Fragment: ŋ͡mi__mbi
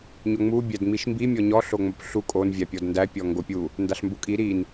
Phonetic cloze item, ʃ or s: ʃ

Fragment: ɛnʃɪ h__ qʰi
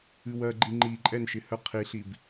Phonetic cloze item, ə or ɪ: ə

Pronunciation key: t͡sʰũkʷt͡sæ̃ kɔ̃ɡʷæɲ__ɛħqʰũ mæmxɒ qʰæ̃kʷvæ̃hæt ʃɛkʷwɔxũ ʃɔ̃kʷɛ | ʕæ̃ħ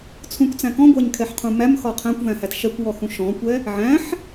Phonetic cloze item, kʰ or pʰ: kʰ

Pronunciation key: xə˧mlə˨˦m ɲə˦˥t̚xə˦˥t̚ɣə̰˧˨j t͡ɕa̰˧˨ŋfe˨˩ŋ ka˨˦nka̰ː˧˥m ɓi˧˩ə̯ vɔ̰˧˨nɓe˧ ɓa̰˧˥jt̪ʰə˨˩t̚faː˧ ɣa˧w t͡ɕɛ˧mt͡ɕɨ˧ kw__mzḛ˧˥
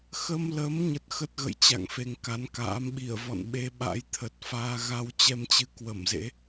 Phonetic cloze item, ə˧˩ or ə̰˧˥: ə˧˩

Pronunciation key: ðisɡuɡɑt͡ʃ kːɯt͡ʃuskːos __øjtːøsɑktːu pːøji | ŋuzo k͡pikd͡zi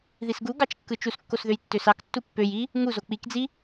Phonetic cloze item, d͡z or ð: ð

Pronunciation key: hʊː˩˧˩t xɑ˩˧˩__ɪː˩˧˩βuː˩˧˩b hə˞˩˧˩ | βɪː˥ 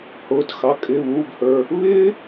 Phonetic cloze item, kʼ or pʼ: kʼ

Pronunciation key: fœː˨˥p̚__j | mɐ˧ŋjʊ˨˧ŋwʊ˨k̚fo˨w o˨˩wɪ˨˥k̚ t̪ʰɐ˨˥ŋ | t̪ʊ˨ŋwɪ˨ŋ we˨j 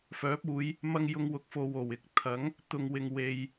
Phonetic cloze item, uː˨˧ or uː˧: uː˨˧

